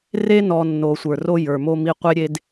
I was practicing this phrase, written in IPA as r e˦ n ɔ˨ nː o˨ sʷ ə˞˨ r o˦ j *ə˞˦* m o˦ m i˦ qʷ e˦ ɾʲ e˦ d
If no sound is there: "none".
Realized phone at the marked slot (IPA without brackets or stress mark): ə˞˨